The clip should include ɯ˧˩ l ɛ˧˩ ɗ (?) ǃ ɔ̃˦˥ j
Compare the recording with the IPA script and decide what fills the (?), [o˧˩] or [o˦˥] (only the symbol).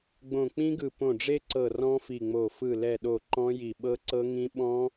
o˧˩